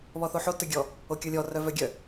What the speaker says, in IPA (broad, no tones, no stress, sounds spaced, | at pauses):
β ɔ θ o ħ o t œ ɡʲ ɔ | o kʲ ɔ lʲ ɔ r œ v œ ɡʲ œ